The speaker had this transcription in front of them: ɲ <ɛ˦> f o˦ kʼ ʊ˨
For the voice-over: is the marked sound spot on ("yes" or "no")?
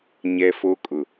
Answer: yes